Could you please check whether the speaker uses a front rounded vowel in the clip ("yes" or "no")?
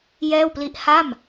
no